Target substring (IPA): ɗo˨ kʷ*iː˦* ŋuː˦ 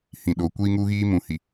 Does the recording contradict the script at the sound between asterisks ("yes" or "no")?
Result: no